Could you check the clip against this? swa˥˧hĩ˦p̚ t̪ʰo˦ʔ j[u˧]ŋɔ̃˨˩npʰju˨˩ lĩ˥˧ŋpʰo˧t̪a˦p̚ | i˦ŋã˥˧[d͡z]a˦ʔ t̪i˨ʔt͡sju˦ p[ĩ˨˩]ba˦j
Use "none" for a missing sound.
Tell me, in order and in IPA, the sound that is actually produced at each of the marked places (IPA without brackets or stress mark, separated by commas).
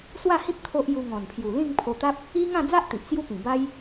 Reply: u˧, d͡z, ĩ˨˩